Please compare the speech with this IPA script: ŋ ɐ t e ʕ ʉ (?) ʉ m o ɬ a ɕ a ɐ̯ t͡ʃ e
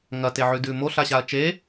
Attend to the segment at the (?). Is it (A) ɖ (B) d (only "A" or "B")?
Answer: B